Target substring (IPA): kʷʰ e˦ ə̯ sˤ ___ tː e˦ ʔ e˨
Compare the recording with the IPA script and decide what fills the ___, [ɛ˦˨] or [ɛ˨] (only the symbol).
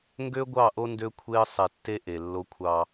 ɛ˨